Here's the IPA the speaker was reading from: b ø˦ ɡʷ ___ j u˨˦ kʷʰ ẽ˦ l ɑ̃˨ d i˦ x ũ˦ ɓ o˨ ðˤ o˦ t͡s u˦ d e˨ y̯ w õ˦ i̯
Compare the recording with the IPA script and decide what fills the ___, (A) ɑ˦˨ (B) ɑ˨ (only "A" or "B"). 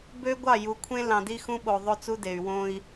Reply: A